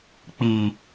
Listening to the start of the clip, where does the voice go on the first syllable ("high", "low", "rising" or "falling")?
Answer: low